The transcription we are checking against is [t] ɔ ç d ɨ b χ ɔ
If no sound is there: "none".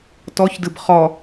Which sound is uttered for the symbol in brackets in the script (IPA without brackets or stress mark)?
t